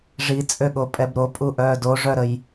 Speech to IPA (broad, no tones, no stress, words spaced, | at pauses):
ʐit͡sʼøɠo pʼɛbɾopʼu ʔœːdoʐœɾəj